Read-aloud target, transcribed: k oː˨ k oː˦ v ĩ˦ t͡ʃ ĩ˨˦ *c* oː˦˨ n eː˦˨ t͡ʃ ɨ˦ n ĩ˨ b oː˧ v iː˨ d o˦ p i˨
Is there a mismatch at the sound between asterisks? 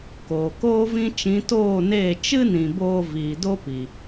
yes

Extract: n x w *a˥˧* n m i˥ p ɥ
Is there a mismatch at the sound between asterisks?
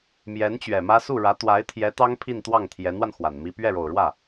yes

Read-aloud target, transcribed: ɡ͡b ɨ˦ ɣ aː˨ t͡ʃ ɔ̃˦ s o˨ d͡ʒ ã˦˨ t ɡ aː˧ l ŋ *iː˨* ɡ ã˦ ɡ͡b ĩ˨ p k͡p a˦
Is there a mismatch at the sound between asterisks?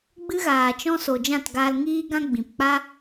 yes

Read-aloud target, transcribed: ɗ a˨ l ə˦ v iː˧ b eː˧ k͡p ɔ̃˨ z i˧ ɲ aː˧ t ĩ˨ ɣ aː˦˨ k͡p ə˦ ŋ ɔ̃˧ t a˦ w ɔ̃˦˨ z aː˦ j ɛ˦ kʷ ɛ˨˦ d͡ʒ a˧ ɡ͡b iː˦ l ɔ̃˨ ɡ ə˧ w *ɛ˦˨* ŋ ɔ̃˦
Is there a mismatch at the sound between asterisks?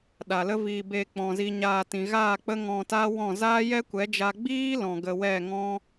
no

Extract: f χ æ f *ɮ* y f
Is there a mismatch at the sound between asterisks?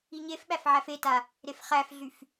no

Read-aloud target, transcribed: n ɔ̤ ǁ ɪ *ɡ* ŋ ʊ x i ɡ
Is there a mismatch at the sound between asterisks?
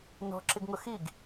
no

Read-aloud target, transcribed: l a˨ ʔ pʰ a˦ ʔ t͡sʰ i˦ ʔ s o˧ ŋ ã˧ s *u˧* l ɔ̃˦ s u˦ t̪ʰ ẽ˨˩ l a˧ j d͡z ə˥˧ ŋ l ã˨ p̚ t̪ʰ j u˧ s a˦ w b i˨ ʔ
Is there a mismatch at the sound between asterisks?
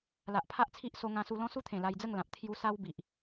no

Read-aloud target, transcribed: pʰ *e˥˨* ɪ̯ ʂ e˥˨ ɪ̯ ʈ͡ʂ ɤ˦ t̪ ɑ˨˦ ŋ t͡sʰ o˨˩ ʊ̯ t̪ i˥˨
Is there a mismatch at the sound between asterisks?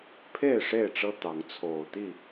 no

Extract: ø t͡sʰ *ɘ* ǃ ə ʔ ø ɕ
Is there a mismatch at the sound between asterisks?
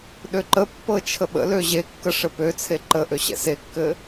yes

